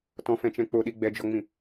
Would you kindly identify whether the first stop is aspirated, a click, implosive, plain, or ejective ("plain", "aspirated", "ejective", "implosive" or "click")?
plain